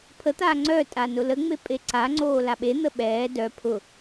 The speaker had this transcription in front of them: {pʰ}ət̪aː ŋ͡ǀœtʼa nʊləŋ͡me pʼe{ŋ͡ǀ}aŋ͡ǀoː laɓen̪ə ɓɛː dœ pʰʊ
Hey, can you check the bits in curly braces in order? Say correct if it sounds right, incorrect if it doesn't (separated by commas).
correct, incorrect